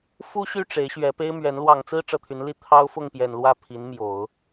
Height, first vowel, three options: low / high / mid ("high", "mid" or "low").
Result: high